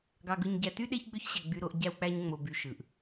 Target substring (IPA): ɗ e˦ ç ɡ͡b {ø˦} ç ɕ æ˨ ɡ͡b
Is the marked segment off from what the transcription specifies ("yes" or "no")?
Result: no